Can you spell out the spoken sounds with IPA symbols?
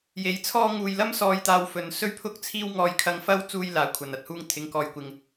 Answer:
j e˨˧ j t͡sʰ ɔː˥ ŋ uː˧ j l ɐ˥ m s ɔː˧ j t̪ aː˧ w f ɵ˨ n s ɵ˥ ɥ pʰ ʊ˥ k̚ t͡sʰ iː˥ w ŋ ɔː˧ j kʰ ɐ˧ ŋ f ɐ˥ w t͡s uː˥ j l aː˨˧ kʷʰ ɐ˨ n ɐ˧ t̚ h uː˥ ŋ t̪ʰ ɪ˨˧ ŋ k ɔː˨ j kʷ ɪ˨ ŋ

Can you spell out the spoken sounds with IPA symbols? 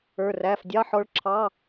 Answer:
ə˞˧˥˧ r æ˧˥˧ f dʲ ɑ˧˥˧ ħ ɔ˧˥ ɭ ǁʰ ɑ˧˥˧

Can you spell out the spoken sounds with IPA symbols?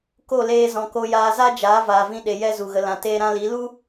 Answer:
k o˦˨ l eː˧ z ɔ̃˨ k o˧ j aː˧ z a˦ d͡ʒ aː˨˦ v aː˨ v ĩ˧ ɗ e˨ j ɛ˦ z u˨ ɣ ə˧ l ã˨ t eː˧ ɾ ã˧ l i˨˦ l u˦

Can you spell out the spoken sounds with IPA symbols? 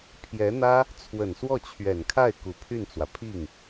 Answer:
pʰ j ɛ˧˥ n̪ ä˥ | t͡sʰ w ə˨˩ n s w ɔ˥˩ t͡ɕʰ ɥ ɛ˨˩ n kʰ a˥˩ ɪ̯ k u˨˩ pʰ y˥˩ n t͡s w ä˩ pʰ i˥˩ ŋ

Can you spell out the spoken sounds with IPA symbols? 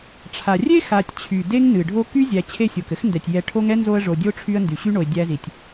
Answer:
ʈ͡ʂʰ a˩ rʲ e˥ x a˨ tʲ t͡ɕʰ y˩ d e˥ ŋ n ɨ˩ ɖʱ o˦ k y˥ zʲ æ˨ t͡ɕʰ e˦ sʲ o˩ k ɘ˥ x n d ɛ˩ tʲ j ɛ˨ ʈʰ o˦ ŋ ɛ˥ n z o˦ ə̯ ʐ o˨ dʲ o˥ ʈ͡ʂʰ y˦ ə̯ n d y˩ ɕ y˥ ɳ o˨ ɪ̯ dʲ æ˥ z i˨ tʲ

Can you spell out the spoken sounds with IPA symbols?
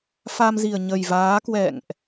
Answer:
f a˧ m z i˨˩ ə̯ ɲ ə˨˩ j v aː˨˦ k w ɛ̰˧˨ ŋ ʔ

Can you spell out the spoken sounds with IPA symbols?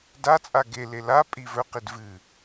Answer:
d a t͡sʼ a ɡ e l e l a pʼ i v ɵ q i d v ɨ

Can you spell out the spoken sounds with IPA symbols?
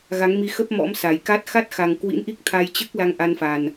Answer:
ɣ a˨˦ ŋ m i˨˦ x ə˦˥ p̚ m ɔ̰˧˥ m s a˨˩ j k a˦˥ t̚ x a˦˥ t̚ x a˨˩ ŋ k w ḭ˧˥ n ʔ i˦˥ k̚ t̪ʰ a˧ j t͡ɕ ɨ˦˥ k̚ l a˧ ŋ ʔ a˧ n f a˨˩ n

